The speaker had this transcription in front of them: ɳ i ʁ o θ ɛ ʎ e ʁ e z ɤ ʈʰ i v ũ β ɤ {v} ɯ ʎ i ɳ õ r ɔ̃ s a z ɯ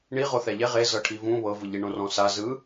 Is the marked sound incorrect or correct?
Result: correct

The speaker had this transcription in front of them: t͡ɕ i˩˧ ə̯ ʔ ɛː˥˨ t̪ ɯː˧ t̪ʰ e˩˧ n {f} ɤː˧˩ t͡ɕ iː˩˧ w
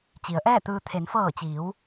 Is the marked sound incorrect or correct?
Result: correct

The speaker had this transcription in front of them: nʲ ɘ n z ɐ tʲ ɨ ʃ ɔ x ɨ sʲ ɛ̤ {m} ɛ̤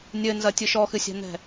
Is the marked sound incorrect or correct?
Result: incorrect: n̪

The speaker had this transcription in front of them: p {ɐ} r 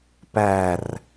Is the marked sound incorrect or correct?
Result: incorrect: æ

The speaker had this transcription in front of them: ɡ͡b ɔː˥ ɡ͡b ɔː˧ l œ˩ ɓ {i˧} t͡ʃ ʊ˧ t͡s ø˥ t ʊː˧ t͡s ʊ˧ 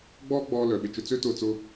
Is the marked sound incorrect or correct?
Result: incorrect: ɪ˧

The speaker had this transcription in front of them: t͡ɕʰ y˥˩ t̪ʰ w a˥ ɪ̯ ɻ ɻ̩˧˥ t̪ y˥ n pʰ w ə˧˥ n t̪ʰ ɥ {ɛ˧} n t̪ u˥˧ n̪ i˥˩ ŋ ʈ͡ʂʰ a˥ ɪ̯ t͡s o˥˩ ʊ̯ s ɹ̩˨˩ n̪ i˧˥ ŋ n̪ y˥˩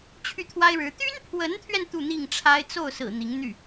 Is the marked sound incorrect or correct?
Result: correct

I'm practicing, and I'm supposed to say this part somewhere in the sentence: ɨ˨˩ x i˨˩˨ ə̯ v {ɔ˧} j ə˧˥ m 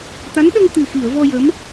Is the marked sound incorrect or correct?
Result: correct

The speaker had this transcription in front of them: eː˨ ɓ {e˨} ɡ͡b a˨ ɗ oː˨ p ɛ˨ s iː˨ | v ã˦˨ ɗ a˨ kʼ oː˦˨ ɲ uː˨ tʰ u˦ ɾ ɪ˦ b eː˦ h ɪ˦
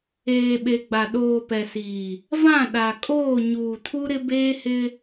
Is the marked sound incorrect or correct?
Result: correct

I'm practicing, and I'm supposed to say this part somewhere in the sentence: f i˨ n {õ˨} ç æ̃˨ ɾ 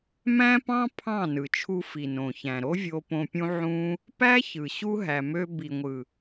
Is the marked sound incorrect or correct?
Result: correct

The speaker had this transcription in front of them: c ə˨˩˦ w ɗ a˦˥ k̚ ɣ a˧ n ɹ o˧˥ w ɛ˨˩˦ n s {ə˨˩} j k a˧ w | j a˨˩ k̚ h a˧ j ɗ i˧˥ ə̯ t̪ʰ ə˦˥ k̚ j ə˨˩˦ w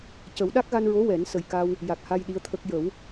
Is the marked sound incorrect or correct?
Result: correct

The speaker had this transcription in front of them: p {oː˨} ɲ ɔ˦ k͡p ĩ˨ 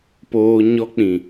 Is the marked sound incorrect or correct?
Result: incorrect: oː˦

